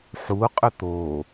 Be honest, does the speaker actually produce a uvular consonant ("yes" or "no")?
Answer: yes